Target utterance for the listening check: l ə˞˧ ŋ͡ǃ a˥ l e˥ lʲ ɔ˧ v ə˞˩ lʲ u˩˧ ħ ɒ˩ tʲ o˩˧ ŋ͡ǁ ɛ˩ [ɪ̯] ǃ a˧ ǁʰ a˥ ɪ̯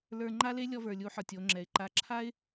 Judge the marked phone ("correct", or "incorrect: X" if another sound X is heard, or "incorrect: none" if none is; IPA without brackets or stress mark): correct